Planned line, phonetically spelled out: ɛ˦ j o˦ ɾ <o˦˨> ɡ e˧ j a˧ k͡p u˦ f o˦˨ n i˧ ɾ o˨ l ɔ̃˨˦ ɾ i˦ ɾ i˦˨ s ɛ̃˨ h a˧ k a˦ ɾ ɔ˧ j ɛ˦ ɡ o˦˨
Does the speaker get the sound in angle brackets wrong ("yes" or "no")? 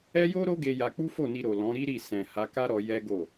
yes